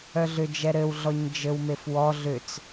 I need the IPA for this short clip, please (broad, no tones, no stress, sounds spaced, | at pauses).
œ ɮ ʏ d͡ʒ ɛ ɾ ɘ w ɮ ɔ ɲ d͡ʒ ɘ w m e f w ɔ ɮ ʏ t͡s